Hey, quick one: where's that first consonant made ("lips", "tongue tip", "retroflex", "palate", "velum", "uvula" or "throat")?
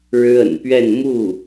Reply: retroflex